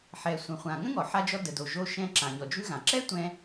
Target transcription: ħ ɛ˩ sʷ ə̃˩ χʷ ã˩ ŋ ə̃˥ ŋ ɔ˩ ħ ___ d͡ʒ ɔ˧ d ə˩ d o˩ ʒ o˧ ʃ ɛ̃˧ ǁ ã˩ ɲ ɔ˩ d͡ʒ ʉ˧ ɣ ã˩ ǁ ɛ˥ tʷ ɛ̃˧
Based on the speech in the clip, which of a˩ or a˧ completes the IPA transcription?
a˧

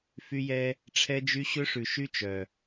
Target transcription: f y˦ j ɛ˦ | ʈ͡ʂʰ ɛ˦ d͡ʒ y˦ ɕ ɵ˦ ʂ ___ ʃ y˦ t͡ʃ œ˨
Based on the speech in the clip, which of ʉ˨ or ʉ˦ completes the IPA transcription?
ʉ˨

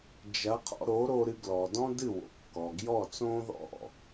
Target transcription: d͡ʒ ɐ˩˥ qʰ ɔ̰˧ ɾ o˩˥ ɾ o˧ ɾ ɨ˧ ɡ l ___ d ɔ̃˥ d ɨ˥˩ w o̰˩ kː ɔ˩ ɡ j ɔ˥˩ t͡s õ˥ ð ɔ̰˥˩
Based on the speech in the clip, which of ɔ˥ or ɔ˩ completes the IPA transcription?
ɔ˩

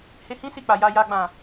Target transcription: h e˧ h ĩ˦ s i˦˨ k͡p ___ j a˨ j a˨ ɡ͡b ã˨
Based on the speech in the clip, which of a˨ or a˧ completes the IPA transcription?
a˨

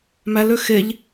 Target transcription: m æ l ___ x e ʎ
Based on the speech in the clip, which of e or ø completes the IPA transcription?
ø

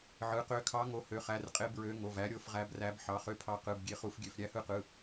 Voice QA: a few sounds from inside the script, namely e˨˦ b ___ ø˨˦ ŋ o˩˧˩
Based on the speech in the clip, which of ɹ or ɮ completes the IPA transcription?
ɹ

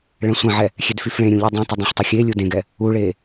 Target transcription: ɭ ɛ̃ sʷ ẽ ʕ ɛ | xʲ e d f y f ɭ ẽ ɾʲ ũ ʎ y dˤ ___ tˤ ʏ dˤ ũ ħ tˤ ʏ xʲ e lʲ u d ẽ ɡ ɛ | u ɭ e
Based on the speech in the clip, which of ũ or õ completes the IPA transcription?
ũ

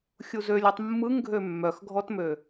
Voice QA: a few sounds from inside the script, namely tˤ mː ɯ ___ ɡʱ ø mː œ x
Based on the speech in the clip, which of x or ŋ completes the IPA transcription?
ŋ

